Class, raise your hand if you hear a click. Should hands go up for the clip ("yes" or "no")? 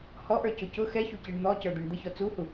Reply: no